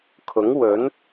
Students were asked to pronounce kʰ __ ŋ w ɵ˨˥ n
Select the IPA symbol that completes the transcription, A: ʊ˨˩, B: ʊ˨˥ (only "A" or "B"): B